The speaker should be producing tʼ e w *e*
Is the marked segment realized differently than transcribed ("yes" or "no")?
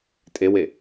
no